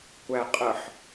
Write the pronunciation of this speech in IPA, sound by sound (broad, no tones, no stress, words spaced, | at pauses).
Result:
kʷæqʼəħ